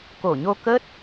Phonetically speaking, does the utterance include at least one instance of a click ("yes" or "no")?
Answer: no